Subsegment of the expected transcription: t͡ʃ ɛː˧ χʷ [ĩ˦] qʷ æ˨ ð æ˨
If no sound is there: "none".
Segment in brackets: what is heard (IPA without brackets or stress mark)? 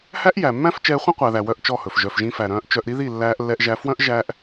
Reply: ĩ˦